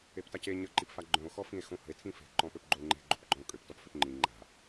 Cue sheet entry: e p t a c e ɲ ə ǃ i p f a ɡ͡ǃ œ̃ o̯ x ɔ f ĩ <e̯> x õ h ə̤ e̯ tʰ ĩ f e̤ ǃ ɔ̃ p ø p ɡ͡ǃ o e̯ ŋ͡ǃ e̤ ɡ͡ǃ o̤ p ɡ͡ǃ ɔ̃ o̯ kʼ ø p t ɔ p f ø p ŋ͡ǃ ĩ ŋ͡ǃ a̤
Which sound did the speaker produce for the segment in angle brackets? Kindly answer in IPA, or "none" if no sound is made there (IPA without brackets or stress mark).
e̯